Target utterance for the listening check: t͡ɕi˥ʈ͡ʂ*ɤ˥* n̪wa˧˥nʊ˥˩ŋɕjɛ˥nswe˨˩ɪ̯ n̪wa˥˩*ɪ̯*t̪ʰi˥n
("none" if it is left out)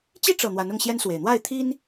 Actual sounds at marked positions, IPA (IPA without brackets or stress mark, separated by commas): ɤ˨˩, ɪ̯